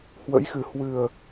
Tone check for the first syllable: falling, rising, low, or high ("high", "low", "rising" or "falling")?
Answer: rising